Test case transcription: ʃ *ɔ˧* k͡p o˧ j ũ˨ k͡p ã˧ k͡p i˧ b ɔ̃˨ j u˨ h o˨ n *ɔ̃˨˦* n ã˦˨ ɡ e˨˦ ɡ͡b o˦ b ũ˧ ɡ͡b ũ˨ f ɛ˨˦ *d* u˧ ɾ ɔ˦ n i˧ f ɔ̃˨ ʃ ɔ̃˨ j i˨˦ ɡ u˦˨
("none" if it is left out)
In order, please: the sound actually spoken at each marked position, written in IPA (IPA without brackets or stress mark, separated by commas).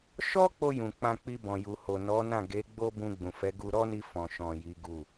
ɔ˦, ɔ˨˦, ɡ